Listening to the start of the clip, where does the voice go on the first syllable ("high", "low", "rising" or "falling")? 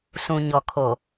low